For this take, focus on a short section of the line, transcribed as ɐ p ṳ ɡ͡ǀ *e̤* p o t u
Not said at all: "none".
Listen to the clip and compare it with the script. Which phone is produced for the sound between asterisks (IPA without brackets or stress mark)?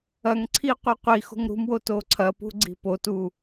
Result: i̤